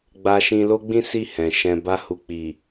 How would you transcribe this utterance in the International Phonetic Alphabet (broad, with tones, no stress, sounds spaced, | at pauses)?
ɡ͡b a˧ ʃ ĩ˧ l o˦ ɡ͡b ĩ˦ s i˦˨ h ɛ̃˨ ʃ ɛ̃˨ b a˧ h u˨ k͡p i˨